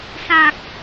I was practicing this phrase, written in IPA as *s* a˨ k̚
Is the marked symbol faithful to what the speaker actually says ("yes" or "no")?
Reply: yes